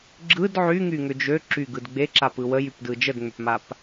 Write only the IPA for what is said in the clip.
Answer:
ɡ͡ǁ ɯ d ʕ y ŋ y ŋ ʏ d͡ʒ ø ǁ y ɡ ɯ d ɡ͡b e ǁ a p ɯ w ə j y p d ɯ d͡ʒ ə d ŋ͡m ʏ p m a p

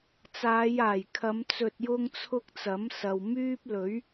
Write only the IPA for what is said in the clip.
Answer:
t͡s aː˨˧ j aː˨˩ j kʰ ɐ˨˧ m t͡s ɵ˧ t̚ j ʊ˥ ŋ t͡sʰ ʊ˥ k̚ t͡s ɐ˨˥ m s ɐ˨ w m yː˥ p̚ l ɵ˨˥ ɥ

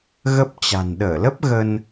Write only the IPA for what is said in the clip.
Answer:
ɣ ə˦˥ p̚ t͡ɕ a̤˨˩ n ɗ əː˧˩ l ə˦˥ p̚ ɣ ə˧ n

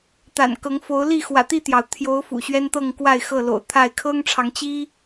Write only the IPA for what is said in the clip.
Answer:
t̪ a̰˨˩ n k ɤ˨˦ ŋ f o˨˦ ʊ̯ l i˥˨ x w ä̰˨˩ t̪ i˥˨ t̪ j ɑ˩ ʊ̯ t̪ʰ j o˨˦ ʊ̯ f ṵ˨˩ ɕ ɥ ɛ˦ n t̪ ɤ˥˨ ŋ k w a˥˨ ɪ̯ x ɤ˥˨ l o̰˨˩ ʊ̯ t̪ʰ a˥˨ ɪ̯ kʰ ɤ˦ ŋ ʈ͡ʂʰ ɑ˨˦ ŋ t͡ɕ i˦

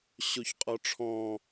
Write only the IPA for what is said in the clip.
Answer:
ɕ o ç qʼ ɔ ʈ͡ʂʰ ɔ̃

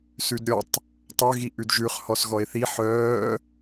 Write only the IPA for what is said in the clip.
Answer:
s ʉ d ɾʲ ɔ tˤ | tˤ œ ɣ i ʔ ʉ d ʒ ʉ χ h ɔ s ɣ ɔ e̯ θ i ħ œː

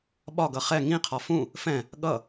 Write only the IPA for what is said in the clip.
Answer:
ɓ ɒ ɡ ʌ χ ɛ ŋ ĩ qʰ ɒ f ũ | f ɛ̃ | ɠ ʌ

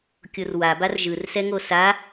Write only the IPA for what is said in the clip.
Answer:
kʲ o r w a b a r ʒ ɯ r s ɛ ŋ o s a

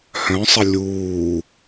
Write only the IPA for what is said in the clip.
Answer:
h œ̃ sˤ ə lʲ uː

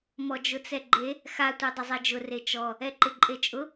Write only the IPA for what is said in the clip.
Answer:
m ɔ d͡ʒ ʊ t͡s ɛ ɡ͡ǃ e | x a tʷ e dˤ ʊ zˤ ɛ d͡ʒ ʊ r e t͡ʃ ɔ | ɛ ǃ ɪ ǃʼ e t͡ʃʼ ʊ

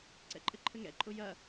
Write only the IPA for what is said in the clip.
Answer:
ǀ ɛ̰ ǃʼ ɘ ǃʰ ɘ ŋ ɛ̰ ǃʼ ʊ j ɐ

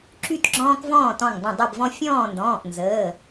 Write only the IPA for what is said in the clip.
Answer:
ǁ y˥˨ t ɡ͡ǁ ɔ̃ː˦ k v ɔ̃ː˥˨ t ɔ̃˧˩ ŋ dˤ ə̃˧˩ dˤ e˥˨ b v ɔ̃˦ fʲ ɔ̃ː˥˨ n d ɔ̃ː˩˧˩ ʔ n z əː˩˧˩

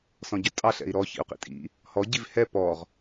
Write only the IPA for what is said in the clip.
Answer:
s ɔ̃ ɟ ɵ tʼ ɑ ɬ ɛ̰ i̯ ɾ ɔ ç ḭ u̯ q ḭ tʼ ḭ | h ɔ ɟ i v h ɛ p ɔ ʁ

